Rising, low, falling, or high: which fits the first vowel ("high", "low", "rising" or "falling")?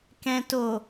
low